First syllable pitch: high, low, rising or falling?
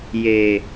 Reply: low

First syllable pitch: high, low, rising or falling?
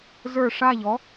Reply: falling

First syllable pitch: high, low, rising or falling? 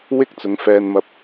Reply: high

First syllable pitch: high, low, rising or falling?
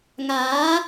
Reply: rising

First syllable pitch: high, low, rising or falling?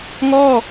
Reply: falling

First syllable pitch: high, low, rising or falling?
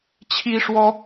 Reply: high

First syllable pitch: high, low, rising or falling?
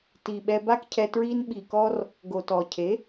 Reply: low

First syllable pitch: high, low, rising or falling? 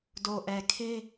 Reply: low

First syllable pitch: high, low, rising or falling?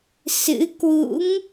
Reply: rising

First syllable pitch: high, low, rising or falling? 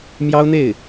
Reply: high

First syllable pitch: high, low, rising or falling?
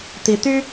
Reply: rising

